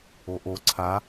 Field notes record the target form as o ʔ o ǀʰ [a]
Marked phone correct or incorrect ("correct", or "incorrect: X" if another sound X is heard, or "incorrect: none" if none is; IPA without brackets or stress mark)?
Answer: correct